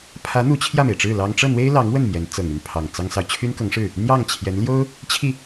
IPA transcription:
pʰ ä˧˥ n̪ u˧˥ t͡ɕʰ j ä˥˩ m e˩ ɪ̯ ʈ͡ʂ ɻ̩˥˩ l ɑ˥ ŋ ʈ͡ʂ ɤ˥˩ n̪ w e˥ ɪ̯ l ɑ˧˥ ŋ w ə˥˩ n m j ɛ˧˥ n t͡s ɤ˨˩ ŋ y˥˩ n pʰ ɑ˨˩ ŋ t͡s ɑ˥ ŋ s ɑ˨ ʊ̯ t͡ɕʰ y˥ n k ɤ˧˥ ŋ ʂ ɻ̩˥˩ | n̪ j ɑ˥˩ ŋ t͡ɕʰ j ɛ˧˥ n l j o˥ ʊ̯ | t͡ɕʰ i˥˩

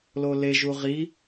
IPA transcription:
l o l e ʒ u ʁ i

